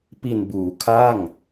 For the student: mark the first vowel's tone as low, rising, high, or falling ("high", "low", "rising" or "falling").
low